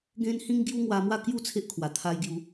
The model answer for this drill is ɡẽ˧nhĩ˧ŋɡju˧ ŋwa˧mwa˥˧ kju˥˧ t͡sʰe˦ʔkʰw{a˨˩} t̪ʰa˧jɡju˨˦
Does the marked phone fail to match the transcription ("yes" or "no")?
no